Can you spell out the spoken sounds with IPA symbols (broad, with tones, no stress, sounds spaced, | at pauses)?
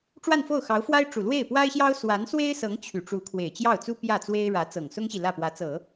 ʈ͡ʂ w a˥˧ n f o˥˩ ʊ̯ x ɑ˧˥ ʊ̯ f w a˥ ɪ̯ ʈ͡ʂ u˨˩ l w e˥˩ ɪ̯ p w a˥ ɪ̯ ɕ j ɑ˥ ʊ̯ s w a˧˥ n s w e˥ ɪ̯ s ɤ˧˥ ŋ t͡ɕʰ y˨˩ ʈ͡ʂ u˧˥ kʰ w e˨˩ ɪ̯ t͡ɕ j ɑ˥˩ ʊ̯ t͡s u˥ p j ä˥˩ t͡s w e˥ ɪ̯ ɻ ä˧˥ t͡s ɤ˨˩ ŋ s ʊ˥ ŋ ɕ i˨ l ä˥˩ p w ä˧˥ t͡s ɤ˨˩˦